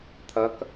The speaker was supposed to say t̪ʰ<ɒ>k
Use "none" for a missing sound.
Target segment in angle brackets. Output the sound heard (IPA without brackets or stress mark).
ʌ